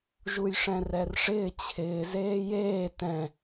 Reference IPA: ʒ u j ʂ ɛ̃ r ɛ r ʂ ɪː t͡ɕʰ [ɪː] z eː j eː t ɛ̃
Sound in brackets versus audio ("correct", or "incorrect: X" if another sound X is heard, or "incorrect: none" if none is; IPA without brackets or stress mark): correct